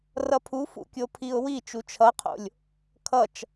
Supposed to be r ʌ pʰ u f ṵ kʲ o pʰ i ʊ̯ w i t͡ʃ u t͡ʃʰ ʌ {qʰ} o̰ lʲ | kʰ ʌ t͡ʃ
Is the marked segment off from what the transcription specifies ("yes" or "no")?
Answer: no